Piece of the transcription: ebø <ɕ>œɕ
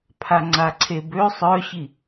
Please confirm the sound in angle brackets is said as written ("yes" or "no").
no